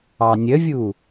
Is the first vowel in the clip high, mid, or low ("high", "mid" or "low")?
low